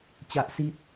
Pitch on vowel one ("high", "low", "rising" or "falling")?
high